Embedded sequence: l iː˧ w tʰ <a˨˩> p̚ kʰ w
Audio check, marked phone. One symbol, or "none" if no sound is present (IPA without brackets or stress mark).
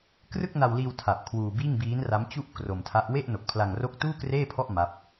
a˨˩